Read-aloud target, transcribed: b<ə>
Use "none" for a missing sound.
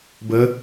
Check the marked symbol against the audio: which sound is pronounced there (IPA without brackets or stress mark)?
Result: ə